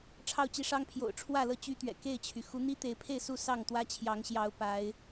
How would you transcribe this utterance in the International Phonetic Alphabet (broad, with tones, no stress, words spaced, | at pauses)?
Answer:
ʈ͡ʂʰɑ˥˨ʊ̯t͡ɕi˦ʂɑ˦ŋpʰjo̰˨˩ʊ̯ ʈ͡ʂʰwä˥˨lɤ˥˨ t͡ɕy˦t̪ɥɛ̰˨˩ ke˥˨ɪ̯t͡ɕʰy˩ xu˨˦n̪i˦t̪e˨˦ɪ̯pʰe˥˨ɪ̯ su˥˨sɑ˥˨ŋ t̪wä˦t͡ɕʰjɑ˨˦ŋ ɕjɑ˨˦ʊ̯pa˨˦ɪ̯